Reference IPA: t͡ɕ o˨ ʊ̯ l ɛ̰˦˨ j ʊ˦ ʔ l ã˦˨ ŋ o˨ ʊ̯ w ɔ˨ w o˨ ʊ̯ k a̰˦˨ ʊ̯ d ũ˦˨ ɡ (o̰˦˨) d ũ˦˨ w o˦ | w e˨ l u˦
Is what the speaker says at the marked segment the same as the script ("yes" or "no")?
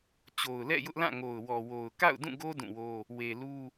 no